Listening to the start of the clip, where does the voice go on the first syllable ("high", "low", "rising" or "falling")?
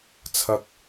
high